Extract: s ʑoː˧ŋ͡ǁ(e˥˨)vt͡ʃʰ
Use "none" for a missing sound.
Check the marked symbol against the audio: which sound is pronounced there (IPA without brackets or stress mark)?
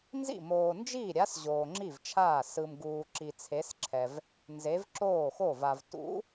i˥˨